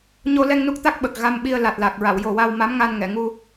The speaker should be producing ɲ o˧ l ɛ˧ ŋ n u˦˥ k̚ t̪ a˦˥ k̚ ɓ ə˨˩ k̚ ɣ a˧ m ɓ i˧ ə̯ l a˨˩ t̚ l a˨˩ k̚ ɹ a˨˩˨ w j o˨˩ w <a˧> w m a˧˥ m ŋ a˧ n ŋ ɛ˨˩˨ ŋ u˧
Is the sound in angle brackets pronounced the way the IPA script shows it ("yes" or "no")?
yes